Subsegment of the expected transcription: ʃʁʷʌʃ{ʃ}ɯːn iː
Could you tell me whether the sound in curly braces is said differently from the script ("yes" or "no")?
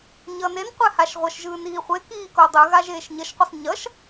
yes